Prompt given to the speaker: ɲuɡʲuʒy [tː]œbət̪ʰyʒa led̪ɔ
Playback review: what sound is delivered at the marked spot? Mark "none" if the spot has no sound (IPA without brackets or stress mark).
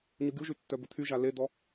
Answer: tː